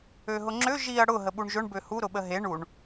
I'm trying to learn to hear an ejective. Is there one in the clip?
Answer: no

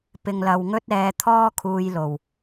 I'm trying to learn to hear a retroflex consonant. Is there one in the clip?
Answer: no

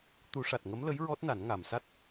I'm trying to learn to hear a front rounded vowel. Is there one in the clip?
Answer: no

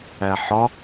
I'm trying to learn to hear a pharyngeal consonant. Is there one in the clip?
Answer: yes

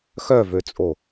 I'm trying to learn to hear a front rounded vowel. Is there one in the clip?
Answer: yes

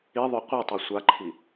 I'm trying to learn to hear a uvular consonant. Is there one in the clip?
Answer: yes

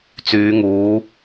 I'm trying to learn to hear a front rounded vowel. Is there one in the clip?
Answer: yes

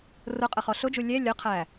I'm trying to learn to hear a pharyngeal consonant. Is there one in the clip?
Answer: no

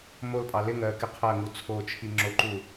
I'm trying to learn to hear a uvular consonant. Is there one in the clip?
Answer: yes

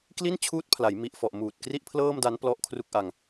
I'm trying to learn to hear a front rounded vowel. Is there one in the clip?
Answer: no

